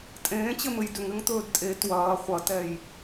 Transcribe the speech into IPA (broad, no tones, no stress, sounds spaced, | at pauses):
tʼ ẽː t͡ɕ ɘ m ɘ j d ʏ ŋ ɘ ŋ t̪ ɵː d tʼ e t w ɐː χʷ ɐ t ɛ j